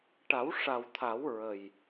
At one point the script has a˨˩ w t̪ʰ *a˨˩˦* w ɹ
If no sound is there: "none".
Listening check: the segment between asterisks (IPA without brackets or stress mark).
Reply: a˨˩˦